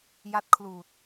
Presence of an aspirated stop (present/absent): present